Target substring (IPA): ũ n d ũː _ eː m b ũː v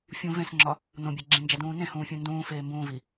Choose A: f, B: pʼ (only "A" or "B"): A